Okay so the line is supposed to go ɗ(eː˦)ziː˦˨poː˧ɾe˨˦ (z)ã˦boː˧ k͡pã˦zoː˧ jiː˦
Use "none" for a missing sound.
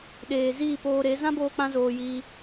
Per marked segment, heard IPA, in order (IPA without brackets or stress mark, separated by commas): eː˨, z